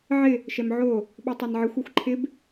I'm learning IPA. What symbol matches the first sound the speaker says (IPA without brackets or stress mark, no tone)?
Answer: ʕ